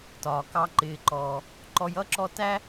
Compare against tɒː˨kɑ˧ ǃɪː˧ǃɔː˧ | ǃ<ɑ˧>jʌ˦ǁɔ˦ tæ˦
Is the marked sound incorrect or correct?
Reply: incorrect